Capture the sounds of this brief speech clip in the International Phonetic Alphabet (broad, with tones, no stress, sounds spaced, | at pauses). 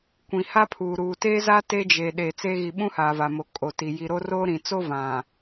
kʷ ĩ˨ h a˦ pʰ uː˨ ɾ uː˨ t eː˦ z a˦ t e˦ d͡ʒ e˨ ɗ eː˨ t͡s eː˦ ɣ i˨ ɓ ũ˦ h aː˨ v a˨ m o˨ kʼ o˨ t i˨ j i˨ ɾ o˦ r oː˦ ɾ ĩ˨ t͡s o˦ v ã˨